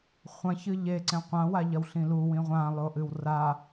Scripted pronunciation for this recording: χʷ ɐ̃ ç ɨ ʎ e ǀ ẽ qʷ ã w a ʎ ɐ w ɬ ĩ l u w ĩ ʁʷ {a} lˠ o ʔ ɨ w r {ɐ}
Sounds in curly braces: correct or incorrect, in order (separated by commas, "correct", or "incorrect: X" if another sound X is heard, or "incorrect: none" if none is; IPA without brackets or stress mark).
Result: incorrect: ã, incorrect: a